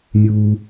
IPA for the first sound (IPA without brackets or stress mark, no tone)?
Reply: mʲ